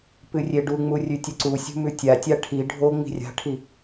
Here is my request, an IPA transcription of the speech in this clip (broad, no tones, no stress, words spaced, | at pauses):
pɨrʲeɖuŋ͡mu rʲʉtʲɵǀusʲṳ mʉtʲatʲa ʈʰi ɖʱo ŋ͡mi̤rʲa̤ʈʰi